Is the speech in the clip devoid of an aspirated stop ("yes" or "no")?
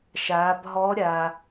yes